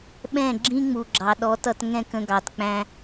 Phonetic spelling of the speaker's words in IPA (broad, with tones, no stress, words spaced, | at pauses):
ɓɛ̃˦˨ɡ͡ǁĩ˦ ŋ͡mu˨ɡ͡ǁɑ˨ ɗɔ˨˦tʌ˧t ŋɛ̃˦kə̃˧ɡɑ˨tk͡pæ̃˧